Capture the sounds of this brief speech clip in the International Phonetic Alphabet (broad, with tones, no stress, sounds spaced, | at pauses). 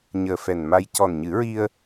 ɲ əː˨˩ f ɛ˨˩ n m a˧ j c ɔ˨˩ n ɲ ɨ˨˩˦ ɹ i˧ ə̯